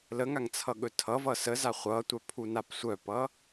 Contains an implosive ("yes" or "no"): yes